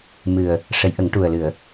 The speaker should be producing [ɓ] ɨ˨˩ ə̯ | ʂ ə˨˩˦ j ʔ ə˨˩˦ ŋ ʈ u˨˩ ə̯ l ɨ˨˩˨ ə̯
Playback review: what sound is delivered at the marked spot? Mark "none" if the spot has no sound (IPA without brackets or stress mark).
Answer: m